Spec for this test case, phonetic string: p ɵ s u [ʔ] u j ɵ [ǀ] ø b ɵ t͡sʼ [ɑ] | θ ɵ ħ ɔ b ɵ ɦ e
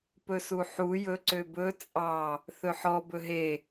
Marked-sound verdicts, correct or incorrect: incorrect, correct, correct

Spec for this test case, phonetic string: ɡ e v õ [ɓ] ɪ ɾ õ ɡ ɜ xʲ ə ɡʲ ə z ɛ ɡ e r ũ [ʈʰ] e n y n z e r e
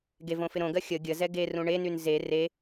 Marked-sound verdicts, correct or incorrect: incorrect, incorrect

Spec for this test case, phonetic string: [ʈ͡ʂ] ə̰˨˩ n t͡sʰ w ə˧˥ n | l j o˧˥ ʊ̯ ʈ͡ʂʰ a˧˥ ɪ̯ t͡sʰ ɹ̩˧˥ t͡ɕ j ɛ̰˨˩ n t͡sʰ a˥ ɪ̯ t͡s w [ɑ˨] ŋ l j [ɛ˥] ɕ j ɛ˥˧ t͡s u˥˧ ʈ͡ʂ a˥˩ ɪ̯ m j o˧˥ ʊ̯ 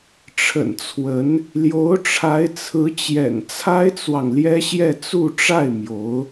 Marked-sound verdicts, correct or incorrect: incorrect, correct, correct

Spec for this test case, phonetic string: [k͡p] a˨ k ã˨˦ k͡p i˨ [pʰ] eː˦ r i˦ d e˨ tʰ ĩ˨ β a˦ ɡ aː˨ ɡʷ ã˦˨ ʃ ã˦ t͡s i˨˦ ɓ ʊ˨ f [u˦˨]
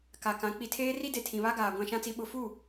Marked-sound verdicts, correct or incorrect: incorrect, incorrect, correct

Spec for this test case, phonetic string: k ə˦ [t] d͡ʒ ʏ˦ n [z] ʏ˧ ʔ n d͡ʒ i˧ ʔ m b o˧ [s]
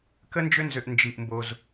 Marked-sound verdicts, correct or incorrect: incorrect, correct, incorrect

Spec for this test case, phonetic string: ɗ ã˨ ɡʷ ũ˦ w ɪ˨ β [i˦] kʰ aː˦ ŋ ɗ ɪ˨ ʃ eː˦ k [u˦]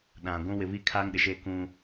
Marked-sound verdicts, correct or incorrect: correct, incorrect

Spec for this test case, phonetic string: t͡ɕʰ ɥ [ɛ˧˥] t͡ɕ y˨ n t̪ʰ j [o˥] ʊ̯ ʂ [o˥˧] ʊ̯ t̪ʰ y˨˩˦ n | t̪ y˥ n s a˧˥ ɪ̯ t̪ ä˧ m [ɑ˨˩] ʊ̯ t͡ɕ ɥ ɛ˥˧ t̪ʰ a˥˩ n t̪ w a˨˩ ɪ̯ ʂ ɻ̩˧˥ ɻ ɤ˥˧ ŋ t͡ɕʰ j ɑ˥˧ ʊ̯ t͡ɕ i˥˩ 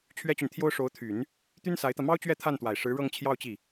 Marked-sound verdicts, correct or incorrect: incorrect, correct, incorrect, incorrect

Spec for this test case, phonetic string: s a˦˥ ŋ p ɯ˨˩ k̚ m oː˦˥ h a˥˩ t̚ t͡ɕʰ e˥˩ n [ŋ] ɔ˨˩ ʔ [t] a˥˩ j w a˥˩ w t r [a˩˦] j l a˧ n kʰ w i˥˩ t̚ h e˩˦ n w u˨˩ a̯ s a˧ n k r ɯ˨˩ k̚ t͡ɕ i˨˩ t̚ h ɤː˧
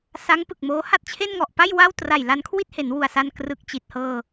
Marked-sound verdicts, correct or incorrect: correct, incorrect, incorrect

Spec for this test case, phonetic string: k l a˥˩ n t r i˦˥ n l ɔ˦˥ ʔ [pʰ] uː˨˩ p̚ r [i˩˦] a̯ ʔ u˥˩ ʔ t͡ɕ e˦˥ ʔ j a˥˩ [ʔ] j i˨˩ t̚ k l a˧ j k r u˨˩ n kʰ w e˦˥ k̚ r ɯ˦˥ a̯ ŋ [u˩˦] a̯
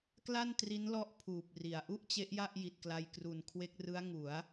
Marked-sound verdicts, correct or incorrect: correct, correct, correct, correct

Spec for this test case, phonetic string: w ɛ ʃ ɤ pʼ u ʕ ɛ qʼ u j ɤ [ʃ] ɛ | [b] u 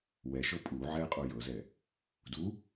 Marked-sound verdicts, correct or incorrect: incorrect, incorrect

